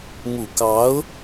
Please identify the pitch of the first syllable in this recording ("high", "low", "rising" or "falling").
low